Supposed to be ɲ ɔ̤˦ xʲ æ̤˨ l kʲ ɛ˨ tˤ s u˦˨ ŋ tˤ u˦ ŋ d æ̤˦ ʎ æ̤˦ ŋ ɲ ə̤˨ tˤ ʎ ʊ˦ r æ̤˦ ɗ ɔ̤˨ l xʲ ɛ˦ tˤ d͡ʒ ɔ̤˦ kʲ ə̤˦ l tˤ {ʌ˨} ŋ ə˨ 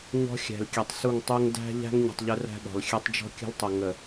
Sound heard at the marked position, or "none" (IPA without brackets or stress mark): ʌ˨